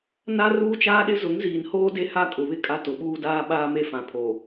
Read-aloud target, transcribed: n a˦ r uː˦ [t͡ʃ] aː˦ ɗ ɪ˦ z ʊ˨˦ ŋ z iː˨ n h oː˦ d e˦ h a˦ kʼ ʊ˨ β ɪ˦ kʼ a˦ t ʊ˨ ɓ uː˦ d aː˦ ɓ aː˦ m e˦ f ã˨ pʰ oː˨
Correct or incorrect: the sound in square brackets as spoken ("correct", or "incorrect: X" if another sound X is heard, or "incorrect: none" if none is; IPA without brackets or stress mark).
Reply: correct